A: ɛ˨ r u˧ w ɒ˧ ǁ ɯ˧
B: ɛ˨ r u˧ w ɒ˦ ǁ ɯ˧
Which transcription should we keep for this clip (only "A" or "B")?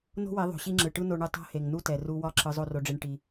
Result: B